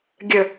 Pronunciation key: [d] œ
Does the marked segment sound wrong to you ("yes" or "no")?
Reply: yes